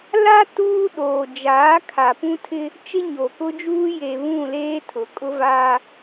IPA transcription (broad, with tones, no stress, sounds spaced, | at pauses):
l a˦ t uː˦ ɗ oː˨ d͡ʒ aː˨˦ kʰ a˨ p ũ˦ tʰ ɪ˦ | t͡ʃ ɪ˦ ɲ o˨ k ʊ˦ d͡ʒ uː˦ j e˨ β ũ˦˨ l eː˦ tʰ ʊ˨ kʼ ʊ˦ v aː˦